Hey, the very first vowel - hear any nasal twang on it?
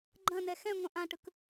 yes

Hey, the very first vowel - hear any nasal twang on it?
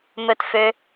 no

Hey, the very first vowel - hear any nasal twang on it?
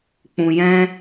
yes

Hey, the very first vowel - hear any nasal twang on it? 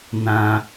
yes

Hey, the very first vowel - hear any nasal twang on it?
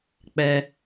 no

